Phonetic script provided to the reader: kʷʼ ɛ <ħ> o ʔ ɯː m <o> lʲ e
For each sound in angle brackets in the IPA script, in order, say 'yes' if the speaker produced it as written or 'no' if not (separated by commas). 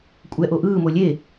no, yes